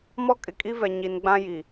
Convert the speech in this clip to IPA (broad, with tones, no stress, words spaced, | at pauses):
mɔ˦kʼɪ˨kʼi˦vɛ˨ ɲi˨nɡ͡bã˦ji˨